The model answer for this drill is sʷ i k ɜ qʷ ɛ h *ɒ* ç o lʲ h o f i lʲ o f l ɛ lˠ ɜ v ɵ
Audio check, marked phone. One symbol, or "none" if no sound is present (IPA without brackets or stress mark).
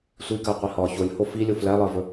ɒ